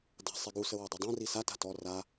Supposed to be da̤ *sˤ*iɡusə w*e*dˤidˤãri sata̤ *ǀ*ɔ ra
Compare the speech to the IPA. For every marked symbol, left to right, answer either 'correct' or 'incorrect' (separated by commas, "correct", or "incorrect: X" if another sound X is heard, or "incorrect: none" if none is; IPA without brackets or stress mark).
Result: correct, correct, incorrect: t